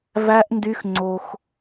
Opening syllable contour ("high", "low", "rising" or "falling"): high